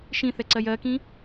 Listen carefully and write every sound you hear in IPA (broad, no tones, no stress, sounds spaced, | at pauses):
ʃ ĩ θ ɛ ǀ ɜ j ɜ k ĩ